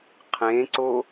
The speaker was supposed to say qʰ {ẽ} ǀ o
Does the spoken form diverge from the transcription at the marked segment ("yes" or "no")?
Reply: no